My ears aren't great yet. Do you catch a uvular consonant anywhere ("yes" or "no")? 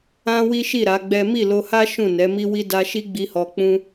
no